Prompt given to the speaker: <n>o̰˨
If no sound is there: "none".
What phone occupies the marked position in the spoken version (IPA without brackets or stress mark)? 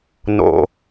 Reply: n